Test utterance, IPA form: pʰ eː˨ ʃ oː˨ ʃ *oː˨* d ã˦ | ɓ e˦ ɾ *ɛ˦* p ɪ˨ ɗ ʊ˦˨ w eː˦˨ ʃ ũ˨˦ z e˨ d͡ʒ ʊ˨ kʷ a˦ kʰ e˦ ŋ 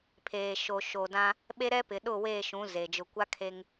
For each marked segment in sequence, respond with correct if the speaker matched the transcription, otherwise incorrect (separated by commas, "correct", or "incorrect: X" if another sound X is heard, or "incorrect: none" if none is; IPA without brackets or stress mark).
correct, correct